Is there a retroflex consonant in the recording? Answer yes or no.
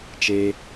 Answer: no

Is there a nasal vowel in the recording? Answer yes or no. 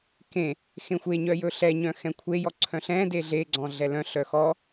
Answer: yes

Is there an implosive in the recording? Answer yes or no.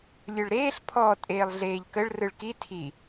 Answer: no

